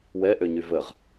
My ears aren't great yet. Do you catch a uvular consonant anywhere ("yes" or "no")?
yes